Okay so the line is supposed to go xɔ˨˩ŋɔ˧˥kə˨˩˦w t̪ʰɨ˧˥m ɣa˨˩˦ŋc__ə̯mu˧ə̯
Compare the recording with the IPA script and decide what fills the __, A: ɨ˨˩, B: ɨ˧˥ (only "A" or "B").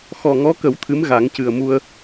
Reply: A